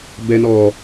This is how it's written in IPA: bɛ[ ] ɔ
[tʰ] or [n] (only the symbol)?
n